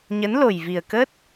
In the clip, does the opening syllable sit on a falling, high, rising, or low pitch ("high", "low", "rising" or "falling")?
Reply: rising